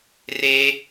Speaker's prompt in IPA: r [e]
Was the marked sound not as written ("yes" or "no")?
no